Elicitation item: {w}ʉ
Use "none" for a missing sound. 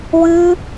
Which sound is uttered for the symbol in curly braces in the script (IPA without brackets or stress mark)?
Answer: w